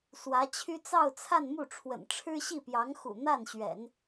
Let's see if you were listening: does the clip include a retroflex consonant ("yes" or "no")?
yes